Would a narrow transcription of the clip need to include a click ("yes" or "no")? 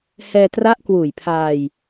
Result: no